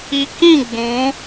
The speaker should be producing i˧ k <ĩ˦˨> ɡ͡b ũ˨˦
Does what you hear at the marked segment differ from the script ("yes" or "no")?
no